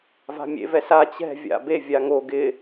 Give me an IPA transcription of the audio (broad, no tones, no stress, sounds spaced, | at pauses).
v a̤ mʲ ḛ v ɛ s a t͡ɕ ɛ̤ vʲ a̰ b e vʲ a ŋ o ɡ ɪ